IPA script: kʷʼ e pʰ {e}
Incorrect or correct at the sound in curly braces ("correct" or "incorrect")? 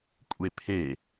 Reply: correct